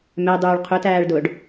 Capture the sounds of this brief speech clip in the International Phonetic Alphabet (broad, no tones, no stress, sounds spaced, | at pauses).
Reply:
m ɛ dˤ uː ɭ qʰ ʊ t æː ɭ d ʊː ɖ